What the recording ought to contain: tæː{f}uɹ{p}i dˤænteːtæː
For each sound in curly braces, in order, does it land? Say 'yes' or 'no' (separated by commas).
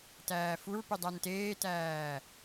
yes, yes